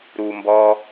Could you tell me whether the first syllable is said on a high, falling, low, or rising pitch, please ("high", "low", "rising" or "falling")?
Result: low